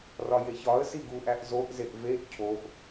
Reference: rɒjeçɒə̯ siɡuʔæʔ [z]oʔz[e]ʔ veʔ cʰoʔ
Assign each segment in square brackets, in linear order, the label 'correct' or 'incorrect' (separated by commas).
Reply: correct, correct